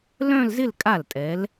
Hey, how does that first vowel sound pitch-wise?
falling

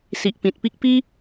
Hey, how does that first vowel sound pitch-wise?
low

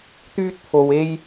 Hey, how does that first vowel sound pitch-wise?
high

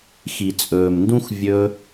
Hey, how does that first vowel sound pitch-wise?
low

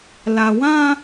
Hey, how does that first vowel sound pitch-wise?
low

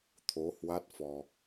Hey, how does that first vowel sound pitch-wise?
rising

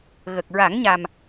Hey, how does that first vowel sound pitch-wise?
low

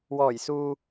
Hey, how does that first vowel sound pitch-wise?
low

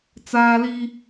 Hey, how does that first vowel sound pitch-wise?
high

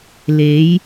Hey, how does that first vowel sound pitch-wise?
rising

